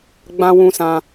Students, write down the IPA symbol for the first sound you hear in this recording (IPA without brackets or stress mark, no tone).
ɡ͡b